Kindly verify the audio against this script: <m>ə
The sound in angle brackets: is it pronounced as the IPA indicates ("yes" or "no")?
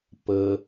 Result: no